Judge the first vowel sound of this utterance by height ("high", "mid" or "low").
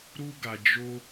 high